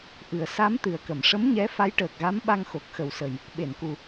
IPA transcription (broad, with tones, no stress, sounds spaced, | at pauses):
ʔ ɨ˨˩ ə̯ s a˧˥ m t̪ ɨ˨˩ ə̯ k ə˨˩˨ m ʂ ə˧˥ m ɲ ɛ˧˥ f a˧˥ j ʈ əː˨˩ k̚ ɣ a˧˥ m ɓ a˧ ŋ x o˨˩ k̚ x ə˨˩ w s ə˨˩ j | ɓ e˨˩˨ n k u˨˩